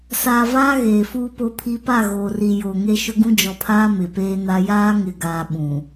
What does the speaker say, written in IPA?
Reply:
s aː˨ v aː˦ ɣ eː˨ f uː˦ p o˦ pʰ i˦ p a˦˨ ɣ oː˨ r i˨ j o˨ ŋ e˦ ʃ ʊ˦ ɡ ũ˦ d͡ʒ ɔ˨ pʰ aː˦ m ɪ˨ p eː˦ n a˦ j aː˦ ŋ ɪ˨ ɡ aː˨ ɓ ũ˨

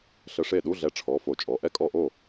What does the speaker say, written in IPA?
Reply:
ɬ ə˧˥˧ ʂ e˥˩ ɗ u˧˥˧ ɮ ɛ˨˥ ʈ͡ʂʰ ɔ˩˧˩ f o˧˩˧ t͡ʃʼ ɔ˩˧˩ ʔ ɛ˥ kʼ ɔ˥˩ ʔ o˥˩

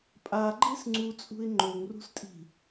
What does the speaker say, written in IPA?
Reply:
pʼ a ɡ͡ǃ e s ŋ͡ǀ u t͡sʼ ṳ ɪ̯ ŋ͡ǃ o ŋ r ṳ s tʼ i̤

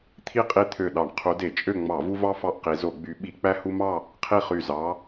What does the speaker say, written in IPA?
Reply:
t̪ʰ i˥˨ qʼ i˦ t̪ʰ ø˧˩ ɗ ɑ˧˩˧ ɳ qʰ u˨˦ d e˧˩˧ t͡ʃʼ ø˥˨ ŋ͡m ɑ˧˩˧ v u˦ v ɑ˦ f ɑ˥˨ ʔ q i˨˦ z o˧˩˧ ɡ͡b y˨˦ ɓ i˧˩˧ k͡p æ˦ h u˦ m ɑ˥˨ | qʰ i˥˨ χ y˧˩ z ɑ˨˦

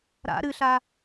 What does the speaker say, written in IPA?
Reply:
ɾ a̰ ɾ ɨ ɬ a

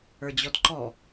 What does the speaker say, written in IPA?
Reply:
ə˞ d͡ʑ ɔ d ǃ ɔ

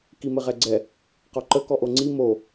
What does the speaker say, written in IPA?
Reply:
k i m ɘ ʁ ɛ ɡ͡ǀ ɛ | q ɔ ǃ ə k ɔ ʔ o ŋ͡ǀ i m o

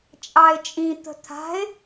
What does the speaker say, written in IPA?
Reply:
t͡ʃʼ ɑ ɪ̯ t͡ʃʼ ĩ t̪ ə̤ t̪ʰ a̤ ɪ̯

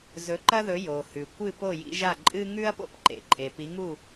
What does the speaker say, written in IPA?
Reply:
z ɵ˨˦ ǃ ɐ˦ ð ɵ˨˦ j o˩ h ʉ˩ kʷ ɨ˥˨ p o˥˨ j ḭ˦ ʒ a˥˨ ǃʼ ɨ˦ ŋ ʉ˦ ɐ̯ p o̰˦ p ǃ ḛ˩ ǃʼ e˩ p i˨˦ ŋ u˥˨

